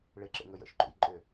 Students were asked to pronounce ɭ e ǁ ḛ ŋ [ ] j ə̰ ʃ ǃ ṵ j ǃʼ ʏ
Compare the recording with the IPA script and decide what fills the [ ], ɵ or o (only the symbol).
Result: ɵ